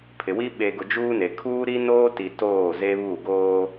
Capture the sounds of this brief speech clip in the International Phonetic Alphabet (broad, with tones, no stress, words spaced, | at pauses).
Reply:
pʰɪ˨wi˦ ɓe˨ɡʊ˨ d͡ʒuː˦ne˨ kʰuː˦ɾi˦noː˦ti˨ toː˦˨ze˦βu˦˨ɡoː˦